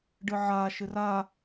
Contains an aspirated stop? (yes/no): no